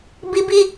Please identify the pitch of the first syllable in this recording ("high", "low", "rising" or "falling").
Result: high